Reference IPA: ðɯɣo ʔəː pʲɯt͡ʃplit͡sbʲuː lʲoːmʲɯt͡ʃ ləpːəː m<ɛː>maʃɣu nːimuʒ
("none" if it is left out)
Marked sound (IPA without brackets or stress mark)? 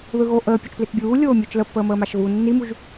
əː